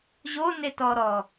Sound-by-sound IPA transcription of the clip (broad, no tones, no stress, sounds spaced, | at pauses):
ʑ o n e t ɔ ɾ ɔ